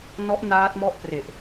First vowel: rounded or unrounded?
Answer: rounded